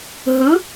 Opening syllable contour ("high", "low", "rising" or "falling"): rising